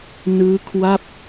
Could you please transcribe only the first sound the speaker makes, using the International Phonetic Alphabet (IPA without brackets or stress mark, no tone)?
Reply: n